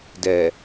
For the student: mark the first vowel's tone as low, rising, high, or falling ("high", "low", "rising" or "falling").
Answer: low